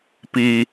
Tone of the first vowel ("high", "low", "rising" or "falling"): low